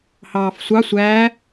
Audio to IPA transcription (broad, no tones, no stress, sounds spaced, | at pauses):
h ɑː f sʷ ɑ sʷ æː